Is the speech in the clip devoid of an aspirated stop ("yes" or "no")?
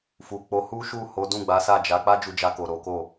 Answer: yes